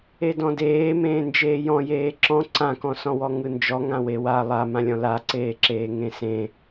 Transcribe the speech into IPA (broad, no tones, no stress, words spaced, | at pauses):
edɔ̃deː mẽːnd͡ʒeːjɔ̃ jeːǁɔ̃ ǀãkɔ̃sɔ̃wɔ ŋɯnd͡ʒɔ ŋãwewa lˠamãlʲɔ̃ laǀeːǁeː ŋẽsẽ